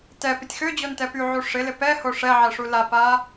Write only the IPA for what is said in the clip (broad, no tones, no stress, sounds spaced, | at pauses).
t ɛ p ɪ tʲ x ø d͡ʑ o n t ɛ p y ʕ u ʂ ɪ l ɪ p ɛ h o ʂ ɛ ʕ ɛ ʂ u l a p a